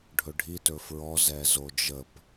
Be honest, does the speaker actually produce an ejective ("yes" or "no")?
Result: no